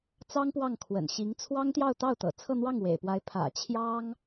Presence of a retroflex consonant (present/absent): absent